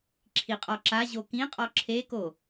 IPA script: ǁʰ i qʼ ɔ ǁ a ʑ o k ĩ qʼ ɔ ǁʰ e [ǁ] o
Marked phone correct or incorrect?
incorrect